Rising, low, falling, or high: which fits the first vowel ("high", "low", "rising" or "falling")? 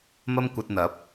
high